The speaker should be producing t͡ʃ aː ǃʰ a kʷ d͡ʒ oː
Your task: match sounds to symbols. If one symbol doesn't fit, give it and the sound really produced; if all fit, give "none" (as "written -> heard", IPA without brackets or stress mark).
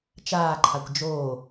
none